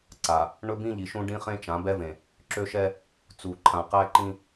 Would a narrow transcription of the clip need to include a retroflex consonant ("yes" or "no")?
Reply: yes